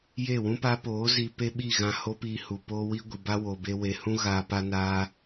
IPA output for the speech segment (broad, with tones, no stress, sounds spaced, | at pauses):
j e˦˨ w ũ˦ p a˦ p oː˨˦ z i˧ p e˦ ɓ i˦˨ ɣ ã˧ h o˦ p iː˧ h u˨ p oː˦ w i˦ ɡʷ i˨ b a˦ w o˨ b e˧ w e˨ h ũ˦ ɣ aː˧ p a˦ n aː˦